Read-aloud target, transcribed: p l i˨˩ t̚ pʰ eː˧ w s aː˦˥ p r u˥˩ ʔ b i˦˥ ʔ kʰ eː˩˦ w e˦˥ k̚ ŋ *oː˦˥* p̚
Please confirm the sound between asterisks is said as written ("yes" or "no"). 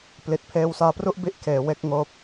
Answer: yes